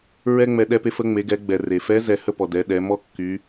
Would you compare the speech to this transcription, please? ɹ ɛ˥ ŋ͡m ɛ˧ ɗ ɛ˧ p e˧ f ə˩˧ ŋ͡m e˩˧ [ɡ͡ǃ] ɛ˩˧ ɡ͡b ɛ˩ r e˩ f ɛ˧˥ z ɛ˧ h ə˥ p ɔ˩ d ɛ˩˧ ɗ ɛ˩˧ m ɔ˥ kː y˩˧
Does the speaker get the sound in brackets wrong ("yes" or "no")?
yes